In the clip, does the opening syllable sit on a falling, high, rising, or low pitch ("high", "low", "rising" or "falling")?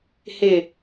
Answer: low